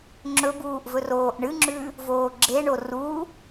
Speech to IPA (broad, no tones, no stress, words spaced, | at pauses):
ŋ͡ǁɵbuːʔ vɵroːʔɳɨŋ͡ǁʉ | voːɡ͡ǁeɳo ru